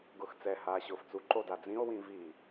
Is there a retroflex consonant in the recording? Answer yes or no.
no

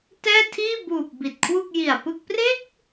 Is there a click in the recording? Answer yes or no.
no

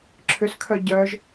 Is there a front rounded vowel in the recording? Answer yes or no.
yes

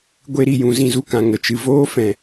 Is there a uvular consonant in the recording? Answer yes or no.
no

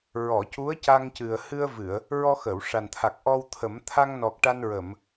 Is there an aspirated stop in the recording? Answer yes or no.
yes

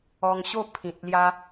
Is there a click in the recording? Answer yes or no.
no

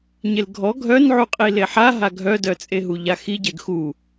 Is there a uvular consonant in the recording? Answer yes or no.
yes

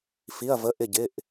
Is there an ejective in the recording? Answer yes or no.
no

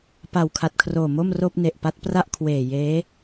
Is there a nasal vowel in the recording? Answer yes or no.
no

